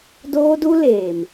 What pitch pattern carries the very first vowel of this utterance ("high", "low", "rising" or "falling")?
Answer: high